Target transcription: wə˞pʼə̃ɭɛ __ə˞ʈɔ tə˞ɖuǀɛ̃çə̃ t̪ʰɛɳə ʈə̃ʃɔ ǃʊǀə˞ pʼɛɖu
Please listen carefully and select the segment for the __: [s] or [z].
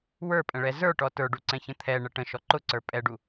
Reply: z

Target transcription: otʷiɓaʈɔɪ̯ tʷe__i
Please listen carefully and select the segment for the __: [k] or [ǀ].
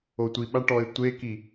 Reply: k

